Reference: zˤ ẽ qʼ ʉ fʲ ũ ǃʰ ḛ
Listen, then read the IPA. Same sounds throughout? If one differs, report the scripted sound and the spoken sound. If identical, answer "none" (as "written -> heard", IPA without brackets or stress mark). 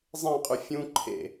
none